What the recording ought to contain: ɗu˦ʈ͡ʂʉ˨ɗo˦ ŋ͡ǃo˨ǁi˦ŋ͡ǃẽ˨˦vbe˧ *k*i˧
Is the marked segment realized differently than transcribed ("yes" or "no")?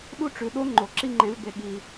yes